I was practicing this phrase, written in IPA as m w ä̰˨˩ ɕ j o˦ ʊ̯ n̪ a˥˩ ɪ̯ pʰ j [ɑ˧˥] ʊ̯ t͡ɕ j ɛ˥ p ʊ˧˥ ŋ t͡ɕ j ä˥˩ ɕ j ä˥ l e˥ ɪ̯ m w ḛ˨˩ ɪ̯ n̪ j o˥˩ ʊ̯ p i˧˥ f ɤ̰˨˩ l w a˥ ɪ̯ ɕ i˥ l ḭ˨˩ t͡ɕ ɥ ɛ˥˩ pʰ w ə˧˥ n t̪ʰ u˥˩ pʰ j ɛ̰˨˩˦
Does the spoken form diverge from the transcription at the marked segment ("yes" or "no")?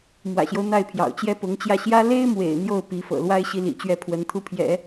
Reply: yes